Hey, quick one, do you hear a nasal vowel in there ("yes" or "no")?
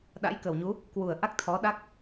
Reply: no